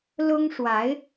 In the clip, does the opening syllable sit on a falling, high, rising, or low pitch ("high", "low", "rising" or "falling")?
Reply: high